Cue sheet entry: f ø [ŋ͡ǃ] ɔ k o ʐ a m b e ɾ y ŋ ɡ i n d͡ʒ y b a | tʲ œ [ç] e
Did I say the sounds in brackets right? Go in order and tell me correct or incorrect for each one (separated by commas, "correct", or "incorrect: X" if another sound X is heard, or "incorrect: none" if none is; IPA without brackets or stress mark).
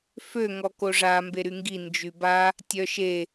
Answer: incorrect: ŋ, incorrect: ʃ